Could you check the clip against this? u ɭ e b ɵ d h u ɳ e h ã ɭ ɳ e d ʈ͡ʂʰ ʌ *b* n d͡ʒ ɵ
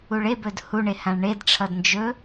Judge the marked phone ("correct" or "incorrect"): incorrect